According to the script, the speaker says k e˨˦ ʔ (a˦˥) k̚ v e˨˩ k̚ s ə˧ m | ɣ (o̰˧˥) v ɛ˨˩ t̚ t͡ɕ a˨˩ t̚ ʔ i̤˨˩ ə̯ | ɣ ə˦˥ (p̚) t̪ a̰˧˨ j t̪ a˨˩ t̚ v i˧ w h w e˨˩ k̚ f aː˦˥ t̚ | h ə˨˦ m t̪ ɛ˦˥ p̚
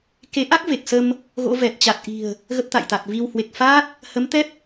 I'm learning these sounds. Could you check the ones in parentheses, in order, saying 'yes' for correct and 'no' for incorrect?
yes, yes, yes

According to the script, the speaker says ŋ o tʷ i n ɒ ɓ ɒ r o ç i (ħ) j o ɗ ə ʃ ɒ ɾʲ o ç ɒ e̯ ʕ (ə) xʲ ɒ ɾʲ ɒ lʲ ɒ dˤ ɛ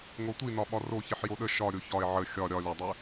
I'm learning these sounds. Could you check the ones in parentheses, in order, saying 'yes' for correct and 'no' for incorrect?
yes, yes

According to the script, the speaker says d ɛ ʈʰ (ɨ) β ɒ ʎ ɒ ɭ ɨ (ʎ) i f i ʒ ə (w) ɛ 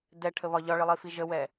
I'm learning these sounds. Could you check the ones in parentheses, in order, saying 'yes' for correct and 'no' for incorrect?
no, no, yes

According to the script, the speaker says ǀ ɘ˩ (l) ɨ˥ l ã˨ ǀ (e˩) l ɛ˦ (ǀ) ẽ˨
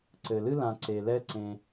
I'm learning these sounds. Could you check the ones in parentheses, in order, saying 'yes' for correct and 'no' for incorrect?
yes, yes, yes

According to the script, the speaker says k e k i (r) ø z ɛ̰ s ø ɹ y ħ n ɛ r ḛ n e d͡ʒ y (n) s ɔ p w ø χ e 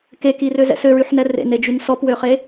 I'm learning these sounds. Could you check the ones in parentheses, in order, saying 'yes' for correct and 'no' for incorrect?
yes, yes

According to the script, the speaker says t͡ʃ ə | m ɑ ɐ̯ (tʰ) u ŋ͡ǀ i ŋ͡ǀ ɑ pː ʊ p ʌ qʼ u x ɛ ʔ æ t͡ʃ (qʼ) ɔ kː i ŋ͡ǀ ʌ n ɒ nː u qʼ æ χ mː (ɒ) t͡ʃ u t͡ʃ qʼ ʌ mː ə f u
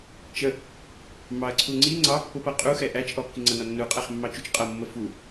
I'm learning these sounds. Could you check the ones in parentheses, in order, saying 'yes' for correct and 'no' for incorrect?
no, no, no

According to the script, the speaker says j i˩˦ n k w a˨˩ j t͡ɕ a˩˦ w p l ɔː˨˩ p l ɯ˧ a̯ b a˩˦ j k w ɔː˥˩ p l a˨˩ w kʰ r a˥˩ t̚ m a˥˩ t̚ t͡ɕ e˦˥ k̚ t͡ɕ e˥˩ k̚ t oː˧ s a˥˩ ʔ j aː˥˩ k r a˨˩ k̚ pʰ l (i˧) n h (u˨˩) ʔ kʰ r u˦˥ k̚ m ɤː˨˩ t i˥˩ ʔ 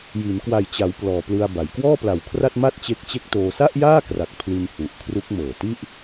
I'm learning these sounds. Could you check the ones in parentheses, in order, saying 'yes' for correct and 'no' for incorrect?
yes, yes

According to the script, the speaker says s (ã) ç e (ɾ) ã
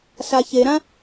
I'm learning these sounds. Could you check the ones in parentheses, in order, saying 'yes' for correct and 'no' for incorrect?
no, yes

